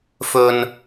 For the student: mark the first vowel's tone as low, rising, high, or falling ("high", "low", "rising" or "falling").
low